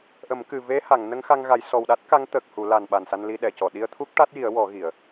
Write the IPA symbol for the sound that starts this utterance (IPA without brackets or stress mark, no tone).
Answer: ʔ